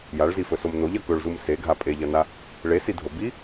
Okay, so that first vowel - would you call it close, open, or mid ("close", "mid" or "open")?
open